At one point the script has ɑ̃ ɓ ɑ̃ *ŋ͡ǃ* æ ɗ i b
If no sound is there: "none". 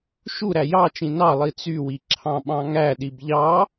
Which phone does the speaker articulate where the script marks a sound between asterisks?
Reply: ŋ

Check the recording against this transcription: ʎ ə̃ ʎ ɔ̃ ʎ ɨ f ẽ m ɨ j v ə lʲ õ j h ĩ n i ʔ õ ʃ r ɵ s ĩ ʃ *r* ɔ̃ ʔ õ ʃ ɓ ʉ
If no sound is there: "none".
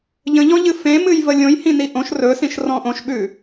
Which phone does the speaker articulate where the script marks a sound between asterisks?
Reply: r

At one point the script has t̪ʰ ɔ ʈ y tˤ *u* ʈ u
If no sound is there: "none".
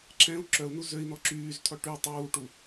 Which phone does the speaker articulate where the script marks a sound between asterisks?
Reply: uː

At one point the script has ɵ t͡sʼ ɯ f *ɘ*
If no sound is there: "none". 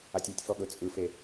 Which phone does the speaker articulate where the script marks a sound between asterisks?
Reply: e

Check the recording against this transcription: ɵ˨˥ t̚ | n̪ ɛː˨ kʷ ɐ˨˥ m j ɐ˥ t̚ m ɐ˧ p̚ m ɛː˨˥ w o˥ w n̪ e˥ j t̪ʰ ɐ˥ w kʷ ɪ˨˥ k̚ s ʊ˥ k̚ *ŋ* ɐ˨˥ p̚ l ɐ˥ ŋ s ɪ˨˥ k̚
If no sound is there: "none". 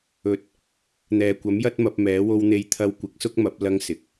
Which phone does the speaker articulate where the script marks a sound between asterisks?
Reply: m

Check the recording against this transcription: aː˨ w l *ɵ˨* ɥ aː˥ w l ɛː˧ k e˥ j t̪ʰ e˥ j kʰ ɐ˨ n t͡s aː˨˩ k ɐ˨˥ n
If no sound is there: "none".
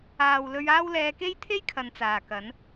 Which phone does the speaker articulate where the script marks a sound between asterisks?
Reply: ɵ˧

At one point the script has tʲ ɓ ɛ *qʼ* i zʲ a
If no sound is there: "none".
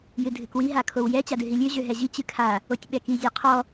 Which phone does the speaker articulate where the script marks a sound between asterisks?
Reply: k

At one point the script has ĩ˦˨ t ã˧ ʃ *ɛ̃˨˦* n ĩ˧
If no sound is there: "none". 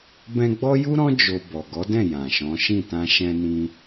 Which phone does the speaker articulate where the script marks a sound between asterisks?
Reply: ɛ̃˧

